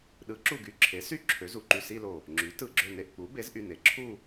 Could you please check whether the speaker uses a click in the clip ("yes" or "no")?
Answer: yes